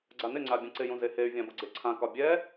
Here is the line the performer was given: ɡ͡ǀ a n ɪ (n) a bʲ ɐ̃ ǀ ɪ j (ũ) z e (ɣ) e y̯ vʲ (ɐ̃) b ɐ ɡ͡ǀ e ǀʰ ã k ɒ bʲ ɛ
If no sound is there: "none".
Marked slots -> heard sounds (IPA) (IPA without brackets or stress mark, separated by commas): ŋ͡ǀ, ũ, h, ã